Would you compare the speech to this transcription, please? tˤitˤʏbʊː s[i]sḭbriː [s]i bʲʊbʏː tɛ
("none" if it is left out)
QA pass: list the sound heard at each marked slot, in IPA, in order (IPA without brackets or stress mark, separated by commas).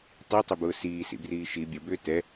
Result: iː, ʃ